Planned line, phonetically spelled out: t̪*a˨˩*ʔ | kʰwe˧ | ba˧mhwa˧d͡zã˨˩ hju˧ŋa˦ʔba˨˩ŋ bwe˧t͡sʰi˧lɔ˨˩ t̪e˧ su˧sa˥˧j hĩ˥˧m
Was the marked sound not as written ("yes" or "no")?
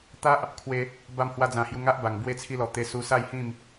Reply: yes